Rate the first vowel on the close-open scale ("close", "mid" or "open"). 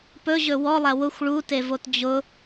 mid